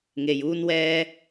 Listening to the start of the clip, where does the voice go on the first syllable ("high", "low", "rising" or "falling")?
low